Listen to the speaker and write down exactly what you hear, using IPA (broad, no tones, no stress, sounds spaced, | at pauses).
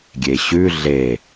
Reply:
ɡʲ e ɕ ʉ ɮ e